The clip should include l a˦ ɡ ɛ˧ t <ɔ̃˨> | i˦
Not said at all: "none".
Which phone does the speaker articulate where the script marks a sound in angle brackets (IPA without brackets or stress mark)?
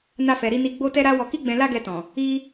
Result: ɔ̃˨